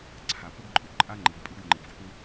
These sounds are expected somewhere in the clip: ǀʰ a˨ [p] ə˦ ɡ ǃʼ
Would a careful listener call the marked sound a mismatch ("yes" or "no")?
no